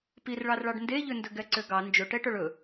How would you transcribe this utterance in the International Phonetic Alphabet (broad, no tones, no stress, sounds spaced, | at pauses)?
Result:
p i r ɭ ɑ r ɭ ɑ ɖ n d e ʎ ø n d ɵ ɡ ɛ ǀ ø ɡ ɑ n d͡ʒ ɵ ʈ ɛ ʈ œ ɭ ɵ